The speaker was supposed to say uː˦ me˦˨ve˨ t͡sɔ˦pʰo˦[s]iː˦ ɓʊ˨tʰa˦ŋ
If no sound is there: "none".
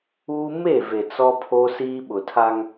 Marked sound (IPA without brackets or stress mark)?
s